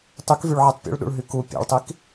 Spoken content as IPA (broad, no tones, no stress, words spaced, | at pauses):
tˤykvyɭʕitˤ pʲṵɭɗṵɭɦy ku pʲɛ̰ɭtˤik